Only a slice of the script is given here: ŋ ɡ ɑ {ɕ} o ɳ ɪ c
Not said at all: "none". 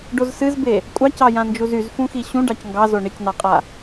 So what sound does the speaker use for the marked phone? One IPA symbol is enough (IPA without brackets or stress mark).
z